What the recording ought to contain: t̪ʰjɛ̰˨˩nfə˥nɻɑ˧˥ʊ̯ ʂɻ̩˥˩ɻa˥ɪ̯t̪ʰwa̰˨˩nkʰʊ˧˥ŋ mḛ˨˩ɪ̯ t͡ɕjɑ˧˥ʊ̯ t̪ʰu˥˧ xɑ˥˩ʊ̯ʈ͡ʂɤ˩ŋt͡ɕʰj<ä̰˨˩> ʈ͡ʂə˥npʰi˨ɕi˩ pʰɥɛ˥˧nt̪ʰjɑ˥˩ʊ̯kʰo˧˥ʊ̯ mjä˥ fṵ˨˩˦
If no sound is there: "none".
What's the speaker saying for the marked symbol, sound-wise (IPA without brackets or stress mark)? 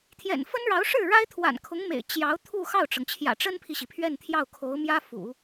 ä̰˨˩